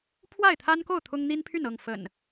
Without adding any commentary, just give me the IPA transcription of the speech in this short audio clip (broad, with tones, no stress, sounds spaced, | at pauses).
pʰ w a˥˨ ɪ̯ t̪ʰ a˦ n k o˥˨ ʊ̯ t̪ʰ ʊ˦ ŋ n̪ i˦ n pʰ y˥˨ n ɤ˥˨ ŋ f ə̰˨˩ n